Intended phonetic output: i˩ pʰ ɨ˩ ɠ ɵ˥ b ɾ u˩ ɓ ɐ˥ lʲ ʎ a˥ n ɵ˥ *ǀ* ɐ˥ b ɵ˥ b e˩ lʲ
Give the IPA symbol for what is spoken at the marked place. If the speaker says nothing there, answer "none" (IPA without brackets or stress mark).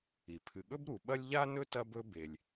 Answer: t